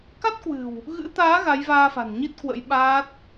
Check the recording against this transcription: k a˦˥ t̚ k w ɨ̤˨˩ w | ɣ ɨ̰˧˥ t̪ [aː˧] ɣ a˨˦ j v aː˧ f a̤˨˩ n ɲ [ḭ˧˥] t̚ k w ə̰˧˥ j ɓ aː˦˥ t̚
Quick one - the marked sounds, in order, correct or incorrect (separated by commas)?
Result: incorrect, incorrect